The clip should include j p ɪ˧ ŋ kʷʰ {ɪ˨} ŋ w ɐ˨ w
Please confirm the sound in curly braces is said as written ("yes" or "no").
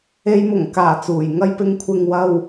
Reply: yes